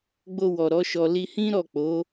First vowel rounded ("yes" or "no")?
yes